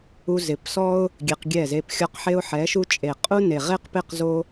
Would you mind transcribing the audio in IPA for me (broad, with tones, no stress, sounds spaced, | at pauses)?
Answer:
u˧ z ɪ˨ p s ɔ˦ ʊ̯ | ɡʲ e˧ q ɡʲ ɛ˦˨ z e˧ p xʲ ɔ˦ q ħ e˧ ʊ̯ ħ ɛ˨˦ ʃ u˧ t͡ʃʼ e˨ qʼ u˦ n e˨ ʁ e˦ q p ɪ˦˨ q z o˦